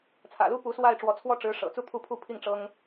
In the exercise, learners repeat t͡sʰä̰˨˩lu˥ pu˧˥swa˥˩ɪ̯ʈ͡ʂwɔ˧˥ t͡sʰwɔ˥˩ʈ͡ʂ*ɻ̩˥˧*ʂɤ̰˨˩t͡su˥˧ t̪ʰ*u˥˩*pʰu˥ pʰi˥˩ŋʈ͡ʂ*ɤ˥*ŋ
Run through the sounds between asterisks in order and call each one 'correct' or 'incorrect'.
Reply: incorrect, correct, correct

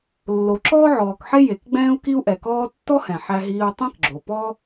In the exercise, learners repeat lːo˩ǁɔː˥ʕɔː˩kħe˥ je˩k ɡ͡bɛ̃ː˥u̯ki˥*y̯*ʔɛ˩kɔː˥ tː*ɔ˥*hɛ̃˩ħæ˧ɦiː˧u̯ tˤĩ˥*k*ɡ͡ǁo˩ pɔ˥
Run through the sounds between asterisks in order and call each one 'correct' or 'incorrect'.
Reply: incorrect, correct, correct

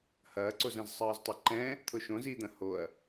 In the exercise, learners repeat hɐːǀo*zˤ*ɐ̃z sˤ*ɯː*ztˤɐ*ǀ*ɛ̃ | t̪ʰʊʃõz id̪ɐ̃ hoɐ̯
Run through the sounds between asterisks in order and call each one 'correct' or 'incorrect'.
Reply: incorrect, correct, incorrect

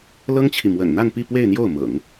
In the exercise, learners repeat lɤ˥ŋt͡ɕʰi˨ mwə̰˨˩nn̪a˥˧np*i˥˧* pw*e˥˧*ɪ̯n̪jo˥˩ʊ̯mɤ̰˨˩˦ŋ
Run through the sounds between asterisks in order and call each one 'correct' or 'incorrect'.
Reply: correct, correct

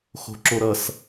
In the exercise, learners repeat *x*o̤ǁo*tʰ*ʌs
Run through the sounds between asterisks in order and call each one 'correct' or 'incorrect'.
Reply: correct, incorrect

